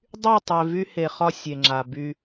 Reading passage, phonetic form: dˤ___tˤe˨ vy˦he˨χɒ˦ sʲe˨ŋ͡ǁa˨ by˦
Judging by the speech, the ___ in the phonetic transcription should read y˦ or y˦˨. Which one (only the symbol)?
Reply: y˦˨